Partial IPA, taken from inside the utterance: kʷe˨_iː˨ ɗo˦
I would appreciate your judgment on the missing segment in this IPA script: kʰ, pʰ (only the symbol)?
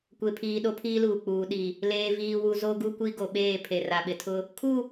pʰ